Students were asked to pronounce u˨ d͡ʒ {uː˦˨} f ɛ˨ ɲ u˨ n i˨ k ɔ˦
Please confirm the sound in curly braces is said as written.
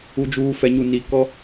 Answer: no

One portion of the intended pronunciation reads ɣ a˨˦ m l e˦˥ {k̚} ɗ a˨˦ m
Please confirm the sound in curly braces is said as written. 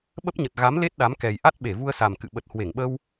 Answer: no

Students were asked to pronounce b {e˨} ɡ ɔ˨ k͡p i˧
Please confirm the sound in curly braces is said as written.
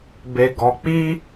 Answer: yes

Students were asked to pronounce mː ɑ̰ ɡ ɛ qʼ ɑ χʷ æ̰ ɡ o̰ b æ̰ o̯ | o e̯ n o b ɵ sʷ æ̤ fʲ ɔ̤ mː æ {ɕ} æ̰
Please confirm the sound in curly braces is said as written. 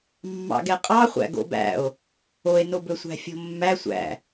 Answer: no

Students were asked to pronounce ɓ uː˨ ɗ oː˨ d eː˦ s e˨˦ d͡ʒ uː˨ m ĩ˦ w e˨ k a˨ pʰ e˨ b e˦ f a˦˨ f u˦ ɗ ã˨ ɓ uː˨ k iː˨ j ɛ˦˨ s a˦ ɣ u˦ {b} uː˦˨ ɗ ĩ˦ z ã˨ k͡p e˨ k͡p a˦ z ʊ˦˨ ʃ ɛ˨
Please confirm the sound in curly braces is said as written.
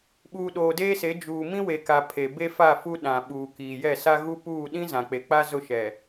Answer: no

